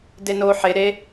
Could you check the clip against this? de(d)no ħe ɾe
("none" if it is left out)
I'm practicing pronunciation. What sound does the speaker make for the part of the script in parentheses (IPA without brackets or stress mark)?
none